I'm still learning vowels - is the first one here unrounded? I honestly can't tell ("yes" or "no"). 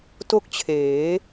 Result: no